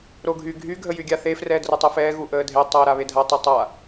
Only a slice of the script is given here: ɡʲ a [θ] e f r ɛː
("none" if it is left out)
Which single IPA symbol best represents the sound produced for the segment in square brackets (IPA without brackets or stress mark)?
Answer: θ